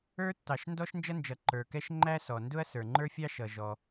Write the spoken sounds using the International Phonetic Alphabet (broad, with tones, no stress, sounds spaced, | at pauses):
ə˞˥ tː ɑ˩ ʃ n d ɔ˥ ʃ n d͡ʒ ʌ˥ n d͡ʒ ʌ˩ ǃ ə˞˩ k ɛ˥ ʃ ŋ͡ǃ æ˥ s ɔ˩ n d ʊ˥ ɐ̯ s ə˞˩ ŋ͡ǃ ə˞˥ fʲ ɑ˥ ʃ ʌ˩ ʒ ɔ˩